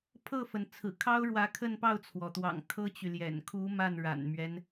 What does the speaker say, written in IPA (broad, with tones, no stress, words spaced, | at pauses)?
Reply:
pʰɤ˥˩fə˩n t͡sʰɹ̩˨˩kʰɑ˥ʊ̯ɻwä˧˥ kʰə˥˧npɑ˥˩ʊ̯t͡sʰwɔ˩t̪wɑ̰˨˩ŋ kʰɤ˥t͡ɕy˨ljɛ̰˨˩n kʰu˧˥ ma˥˩nɻa̰˨˩nmɥɛ˦n